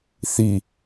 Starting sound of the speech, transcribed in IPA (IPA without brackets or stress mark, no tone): θ